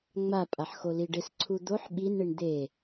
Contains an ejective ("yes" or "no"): yes